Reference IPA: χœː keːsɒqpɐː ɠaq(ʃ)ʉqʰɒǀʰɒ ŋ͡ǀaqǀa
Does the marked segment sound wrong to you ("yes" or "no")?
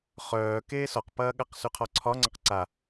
yes